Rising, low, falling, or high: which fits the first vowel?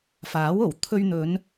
rising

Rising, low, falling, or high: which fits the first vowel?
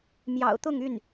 low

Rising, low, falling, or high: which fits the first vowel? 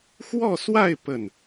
falling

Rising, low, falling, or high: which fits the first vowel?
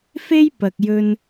high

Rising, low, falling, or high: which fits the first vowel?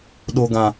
high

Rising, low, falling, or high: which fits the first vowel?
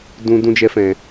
high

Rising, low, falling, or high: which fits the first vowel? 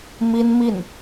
high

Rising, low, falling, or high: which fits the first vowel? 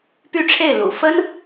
falling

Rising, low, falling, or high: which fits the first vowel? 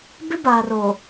high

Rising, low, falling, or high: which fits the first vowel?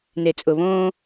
low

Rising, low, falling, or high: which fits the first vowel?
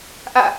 falling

